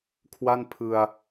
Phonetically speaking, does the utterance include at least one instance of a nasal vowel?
no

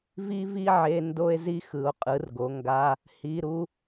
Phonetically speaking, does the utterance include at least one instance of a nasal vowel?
no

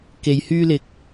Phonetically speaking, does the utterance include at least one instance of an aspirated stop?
no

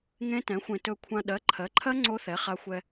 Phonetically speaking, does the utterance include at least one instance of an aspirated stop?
yes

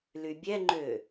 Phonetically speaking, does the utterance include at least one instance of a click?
yes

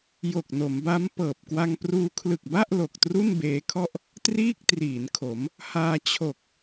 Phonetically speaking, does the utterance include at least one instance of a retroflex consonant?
no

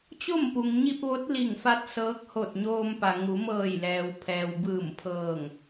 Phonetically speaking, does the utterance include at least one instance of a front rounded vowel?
no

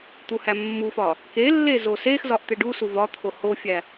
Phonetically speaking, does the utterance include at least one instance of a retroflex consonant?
yes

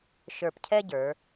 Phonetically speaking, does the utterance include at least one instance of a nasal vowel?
no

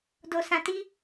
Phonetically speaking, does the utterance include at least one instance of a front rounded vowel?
no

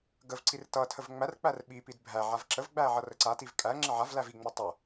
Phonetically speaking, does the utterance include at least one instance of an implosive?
yes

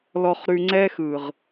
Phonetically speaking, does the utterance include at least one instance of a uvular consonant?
yes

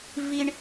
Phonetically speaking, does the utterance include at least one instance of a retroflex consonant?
yes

